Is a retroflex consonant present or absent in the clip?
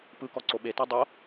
absent